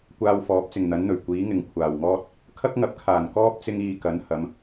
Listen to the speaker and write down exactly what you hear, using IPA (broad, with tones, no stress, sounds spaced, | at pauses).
kʷ aː˧ w f ɔː˨˥ p̚ t͡s ɪ˨˩ ŋ n̪ ɐ˨˥ n n̪ ɵ˨˩ ɥ kʷ iː˨˥ ŋ ɪ˨ ŋ kʷʰ aː˨˩ w ŋ ɔː˥ t̚ | kʰ ɐ˥ k̚ ŋ ɐ˨˥ p̚ kʰ aː˨˩ n k ɔː˥ p̚ t͡s ɪ˥ ŋ iː˧ k ɐ˨˥ n h ɐ˨˧ m